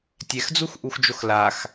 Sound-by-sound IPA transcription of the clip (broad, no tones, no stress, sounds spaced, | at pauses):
tʲ ɛ x d͡z u x ʔ u x d͡ʒ o x l a x